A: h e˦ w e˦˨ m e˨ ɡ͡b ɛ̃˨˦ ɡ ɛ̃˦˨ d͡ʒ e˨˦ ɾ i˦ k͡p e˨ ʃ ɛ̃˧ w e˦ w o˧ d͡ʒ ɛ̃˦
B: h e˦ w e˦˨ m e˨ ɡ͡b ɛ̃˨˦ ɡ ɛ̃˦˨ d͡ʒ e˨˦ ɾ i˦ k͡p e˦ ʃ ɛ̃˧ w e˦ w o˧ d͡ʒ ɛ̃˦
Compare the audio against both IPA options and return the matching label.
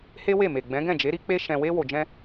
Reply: B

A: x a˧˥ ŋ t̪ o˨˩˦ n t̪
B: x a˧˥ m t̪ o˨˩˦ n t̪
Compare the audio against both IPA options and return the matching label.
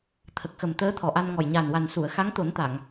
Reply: A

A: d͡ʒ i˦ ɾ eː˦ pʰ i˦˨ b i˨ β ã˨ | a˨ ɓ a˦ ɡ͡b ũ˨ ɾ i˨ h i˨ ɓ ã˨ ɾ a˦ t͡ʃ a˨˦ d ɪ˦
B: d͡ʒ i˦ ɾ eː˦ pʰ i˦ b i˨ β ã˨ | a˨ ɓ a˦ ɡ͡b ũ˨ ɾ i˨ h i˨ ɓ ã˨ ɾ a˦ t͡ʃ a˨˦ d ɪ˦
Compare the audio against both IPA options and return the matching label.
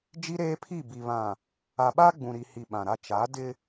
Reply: A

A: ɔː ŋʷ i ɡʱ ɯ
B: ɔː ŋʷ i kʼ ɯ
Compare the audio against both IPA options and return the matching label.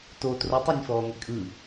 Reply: B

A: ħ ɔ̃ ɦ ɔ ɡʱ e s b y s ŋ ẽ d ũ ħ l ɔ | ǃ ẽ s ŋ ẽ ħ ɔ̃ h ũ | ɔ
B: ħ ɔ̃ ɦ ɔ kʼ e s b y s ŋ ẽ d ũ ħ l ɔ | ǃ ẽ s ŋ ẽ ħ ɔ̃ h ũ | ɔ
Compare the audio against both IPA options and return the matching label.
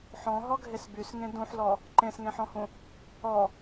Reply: A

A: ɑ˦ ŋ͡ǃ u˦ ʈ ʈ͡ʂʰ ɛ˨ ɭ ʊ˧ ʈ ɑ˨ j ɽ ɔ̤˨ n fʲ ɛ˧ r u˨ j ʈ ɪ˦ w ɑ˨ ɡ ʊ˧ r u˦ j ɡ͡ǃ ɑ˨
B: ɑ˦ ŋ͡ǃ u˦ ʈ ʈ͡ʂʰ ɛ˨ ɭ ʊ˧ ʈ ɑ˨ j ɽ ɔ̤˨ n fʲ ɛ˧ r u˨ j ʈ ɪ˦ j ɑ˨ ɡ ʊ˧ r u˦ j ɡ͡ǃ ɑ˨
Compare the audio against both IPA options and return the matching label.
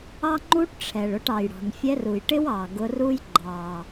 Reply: A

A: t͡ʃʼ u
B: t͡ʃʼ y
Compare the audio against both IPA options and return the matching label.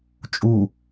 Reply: A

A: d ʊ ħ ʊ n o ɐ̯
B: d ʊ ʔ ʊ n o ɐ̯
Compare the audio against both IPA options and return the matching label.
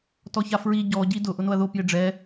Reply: B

